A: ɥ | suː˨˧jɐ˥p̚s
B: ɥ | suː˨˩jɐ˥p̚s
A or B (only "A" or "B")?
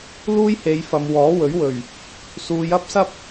A